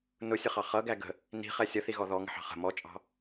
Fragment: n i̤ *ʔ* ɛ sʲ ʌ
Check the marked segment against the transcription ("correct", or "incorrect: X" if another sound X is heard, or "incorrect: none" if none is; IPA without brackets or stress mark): incorrect: χ